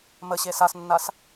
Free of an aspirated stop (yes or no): yes